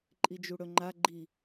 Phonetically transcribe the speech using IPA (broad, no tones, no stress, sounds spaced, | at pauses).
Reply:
ǃʼ i d͡ʒ u ɽ ɵ ŋ͡ǃ a ɡ͡ǃ i